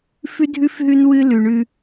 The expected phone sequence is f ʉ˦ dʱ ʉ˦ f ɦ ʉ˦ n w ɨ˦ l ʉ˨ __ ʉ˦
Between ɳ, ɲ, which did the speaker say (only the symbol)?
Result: ɳ